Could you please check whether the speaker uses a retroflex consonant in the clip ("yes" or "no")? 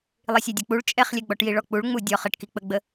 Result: yes